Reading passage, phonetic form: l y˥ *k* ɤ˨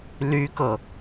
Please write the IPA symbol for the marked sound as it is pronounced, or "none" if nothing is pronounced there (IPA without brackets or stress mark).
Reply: k